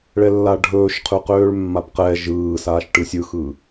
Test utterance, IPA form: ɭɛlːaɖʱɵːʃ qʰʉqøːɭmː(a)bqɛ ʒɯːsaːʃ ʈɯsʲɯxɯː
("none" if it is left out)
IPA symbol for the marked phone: a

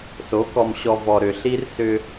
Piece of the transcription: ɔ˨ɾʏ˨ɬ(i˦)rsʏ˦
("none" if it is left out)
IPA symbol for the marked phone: i˦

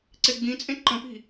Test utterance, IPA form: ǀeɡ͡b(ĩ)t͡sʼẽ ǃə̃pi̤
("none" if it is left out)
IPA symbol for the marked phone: ĩ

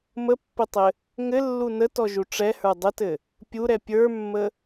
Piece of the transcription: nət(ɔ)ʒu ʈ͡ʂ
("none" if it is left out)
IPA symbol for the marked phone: ɔ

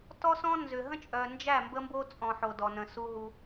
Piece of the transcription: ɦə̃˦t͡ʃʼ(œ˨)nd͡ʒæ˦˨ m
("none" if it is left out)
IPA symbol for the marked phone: œ˨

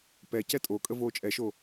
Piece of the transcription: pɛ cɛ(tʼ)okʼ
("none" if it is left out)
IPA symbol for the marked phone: tʼ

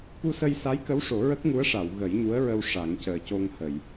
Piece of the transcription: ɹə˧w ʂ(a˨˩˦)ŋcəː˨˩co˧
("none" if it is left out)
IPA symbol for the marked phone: a˨˩˦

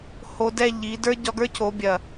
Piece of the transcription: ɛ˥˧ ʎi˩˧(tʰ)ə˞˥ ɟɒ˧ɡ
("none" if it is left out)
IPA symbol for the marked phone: d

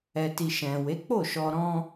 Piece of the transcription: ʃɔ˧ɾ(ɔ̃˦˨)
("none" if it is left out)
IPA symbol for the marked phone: ɔ̃˦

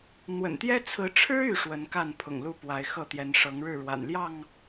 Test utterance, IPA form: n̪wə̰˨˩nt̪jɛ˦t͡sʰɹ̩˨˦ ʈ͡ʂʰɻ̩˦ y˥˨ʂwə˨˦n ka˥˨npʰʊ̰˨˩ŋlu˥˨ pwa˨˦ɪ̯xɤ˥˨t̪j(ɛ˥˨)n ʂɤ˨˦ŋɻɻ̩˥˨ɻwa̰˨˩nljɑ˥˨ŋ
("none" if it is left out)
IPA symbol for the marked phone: ɛ˨˦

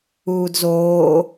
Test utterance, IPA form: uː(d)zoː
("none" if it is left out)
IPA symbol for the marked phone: d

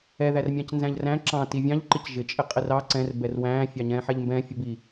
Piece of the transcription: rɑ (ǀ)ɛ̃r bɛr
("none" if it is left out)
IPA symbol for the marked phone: ǀ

